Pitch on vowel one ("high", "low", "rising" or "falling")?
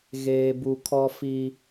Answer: high